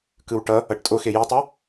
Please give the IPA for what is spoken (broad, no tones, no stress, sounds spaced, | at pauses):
k ɯ w ʈ ʌ | ʌ ʈ tʼ o x e j i tˤ ɯ